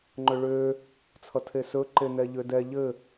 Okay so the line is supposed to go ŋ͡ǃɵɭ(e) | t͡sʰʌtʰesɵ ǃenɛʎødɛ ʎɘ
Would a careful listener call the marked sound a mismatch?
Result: yes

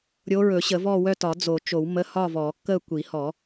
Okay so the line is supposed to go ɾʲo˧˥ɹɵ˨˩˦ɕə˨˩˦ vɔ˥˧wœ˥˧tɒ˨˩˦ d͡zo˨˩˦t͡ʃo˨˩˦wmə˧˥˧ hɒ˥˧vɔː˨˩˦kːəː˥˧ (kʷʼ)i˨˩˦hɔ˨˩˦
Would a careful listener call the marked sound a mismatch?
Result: yes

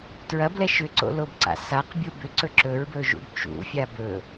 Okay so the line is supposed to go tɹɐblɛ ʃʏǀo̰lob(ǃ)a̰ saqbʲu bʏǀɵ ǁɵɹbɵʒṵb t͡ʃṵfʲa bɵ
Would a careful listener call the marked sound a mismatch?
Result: yes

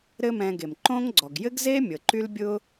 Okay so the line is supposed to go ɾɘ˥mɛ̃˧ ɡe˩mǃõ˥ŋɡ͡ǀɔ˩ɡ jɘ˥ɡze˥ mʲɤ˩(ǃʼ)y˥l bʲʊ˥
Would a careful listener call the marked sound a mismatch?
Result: yes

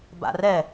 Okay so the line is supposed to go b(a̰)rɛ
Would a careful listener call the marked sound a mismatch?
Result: no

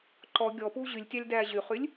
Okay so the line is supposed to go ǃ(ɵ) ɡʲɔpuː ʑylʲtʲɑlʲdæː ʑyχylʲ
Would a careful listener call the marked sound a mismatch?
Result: yes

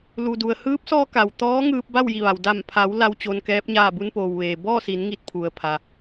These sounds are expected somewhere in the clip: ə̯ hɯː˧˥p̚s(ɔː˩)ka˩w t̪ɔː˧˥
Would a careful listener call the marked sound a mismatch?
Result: yes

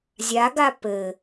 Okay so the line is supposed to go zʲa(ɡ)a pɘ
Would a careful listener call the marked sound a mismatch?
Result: no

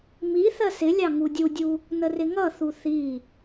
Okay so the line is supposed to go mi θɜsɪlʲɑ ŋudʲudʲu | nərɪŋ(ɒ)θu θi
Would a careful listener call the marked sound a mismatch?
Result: yes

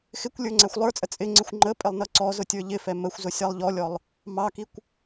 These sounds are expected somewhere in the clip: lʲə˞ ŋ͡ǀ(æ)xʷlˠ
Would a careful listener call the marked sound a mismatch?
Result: no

